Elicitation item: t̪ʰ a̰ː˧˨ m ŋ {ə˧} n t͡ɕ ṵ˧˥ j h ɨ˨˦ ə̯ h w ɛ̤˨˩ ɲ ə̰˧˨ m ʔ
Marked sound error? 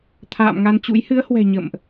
yes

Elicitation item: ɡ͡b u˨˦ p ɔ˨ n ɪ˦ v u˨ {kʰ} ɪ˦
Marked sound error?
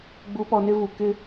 yes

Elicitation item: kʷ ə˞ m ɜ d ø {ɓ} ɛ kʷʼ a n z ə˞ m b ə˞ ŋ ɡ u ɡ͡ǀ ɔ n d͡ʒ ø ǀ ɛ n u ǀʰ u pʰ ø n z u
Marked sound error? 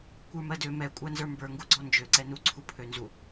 yes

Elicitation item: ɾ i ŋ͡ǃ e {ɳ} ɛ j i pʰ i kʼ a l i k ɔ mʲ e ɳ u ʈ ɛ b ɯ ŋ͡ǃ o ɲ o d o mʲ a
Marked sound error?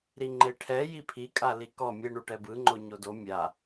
yes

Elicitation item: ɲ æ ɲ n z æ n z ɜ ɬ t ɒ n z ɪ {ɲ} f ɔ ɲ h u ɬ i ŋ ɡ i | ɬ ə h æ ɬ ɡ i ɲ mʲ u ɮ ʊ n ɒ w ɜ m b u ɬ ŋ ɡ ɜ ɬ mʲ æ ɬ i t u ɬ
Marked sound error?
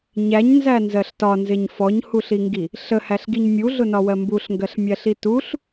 no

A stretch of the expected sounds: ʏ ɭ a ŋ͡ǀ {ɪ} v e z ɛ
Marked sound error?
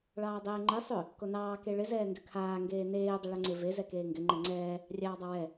no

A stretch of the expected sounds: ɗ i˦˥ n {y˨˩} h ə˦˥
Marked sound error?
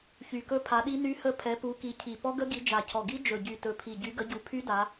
yes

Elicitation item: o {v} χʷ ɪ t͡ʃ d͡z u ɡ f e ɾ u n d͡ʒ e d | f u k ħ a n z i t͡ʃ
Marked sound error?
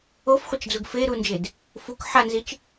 yes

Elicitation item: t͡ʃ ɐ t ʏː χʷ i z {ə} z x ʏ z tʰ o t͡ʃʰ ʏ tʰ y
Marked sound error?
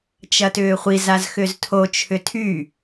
yes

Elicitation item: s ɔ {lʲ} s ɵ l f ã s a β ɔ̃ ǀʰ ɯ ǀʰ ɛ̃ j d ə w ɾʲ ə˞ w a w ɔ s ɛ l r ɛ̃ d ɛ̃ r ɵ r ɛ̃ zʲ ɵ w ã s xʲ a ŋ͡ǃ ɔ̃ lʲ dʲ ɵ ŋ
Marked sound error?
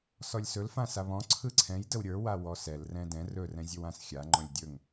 no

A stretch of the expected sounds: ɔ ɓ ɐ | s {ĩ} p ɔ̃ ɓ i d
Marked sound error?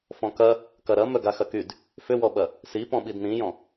yes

